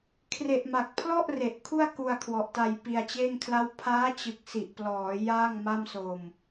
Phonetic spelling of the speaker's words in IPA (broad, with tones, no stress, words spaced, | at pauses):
kʰre˨˩ʔma˨˩k̚pʰlɔ˥˩ʔ re˨˩ʔkʰu˥˩a̯ ku˧a̯kʰwɔ˨˩ʔta˧j pi˧a̯t͡ɕeː˥˩ŋkʰla˥˩w pʰaː˦˥t͡ɕɯ˨˩k̚si˨˩ʔ plɔː˩˦ jaː˥˩ŋma˥˩m so˧m